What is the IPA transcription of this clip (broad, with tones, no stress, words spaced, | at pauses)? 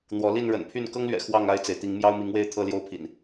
n̪wɔ˨˦li˥˨n ɻə̰˨˩npʰy˥˨n kɤ˦ŋlɥɛ̰˨˩ xwɑ˥˨ŋ a˥˨ɪ̯t͡se˩ɪ̯t̪i˨˦ŋ mjɑ˦ʊ̯mi˨˦ŋwe˥˨ɪ̯ t̪ʰɤ˥˨ljo˥˨ʊ̯pʰḭ˨˩n